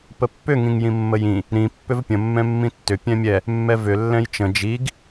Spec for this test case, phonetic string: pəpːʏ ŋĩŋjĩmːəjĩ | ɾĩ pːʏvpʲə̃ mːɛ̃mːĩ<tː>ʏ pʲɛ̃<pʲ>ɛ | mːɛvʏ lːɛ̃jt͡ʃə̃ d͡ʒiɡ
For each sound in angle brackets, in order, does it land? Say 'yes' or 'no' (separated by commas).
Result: yes, no